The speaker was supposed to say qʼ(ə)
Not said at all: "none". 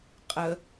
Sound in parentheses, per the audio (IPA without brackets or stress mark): ə